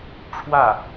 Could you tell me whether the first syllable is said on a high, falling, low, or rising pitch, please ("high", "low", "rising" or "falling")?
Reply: falling